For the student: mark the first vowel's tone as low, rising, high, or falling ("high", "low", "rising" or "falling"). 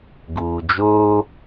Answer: low